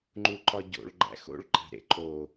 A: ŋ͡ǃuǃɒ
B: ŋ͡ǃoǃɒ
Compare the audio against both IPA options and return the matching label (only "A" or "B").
A